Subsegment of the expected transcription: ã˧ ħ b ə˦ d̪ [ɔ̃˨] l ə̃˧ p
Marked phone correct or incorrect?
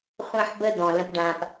correct